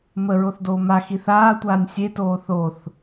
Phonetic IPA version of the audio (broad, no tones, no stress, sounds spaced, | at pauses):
m ə ɹ o θ d oː m a x i θ aː tʷ aː nʲ sʲ e t oː θ o θ